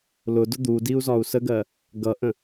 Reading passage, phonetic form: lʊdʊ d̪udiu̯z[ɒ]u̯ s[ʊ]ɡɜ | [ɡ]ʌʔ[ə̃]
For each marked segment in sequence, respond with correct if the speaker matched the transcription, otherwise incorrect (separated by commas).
correct, incorrect, correct, correct